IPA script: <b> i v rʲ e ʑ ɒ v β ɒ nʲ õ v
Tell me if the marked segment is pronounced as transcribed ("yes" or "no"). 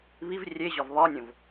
no